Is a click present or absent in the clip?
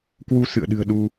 absent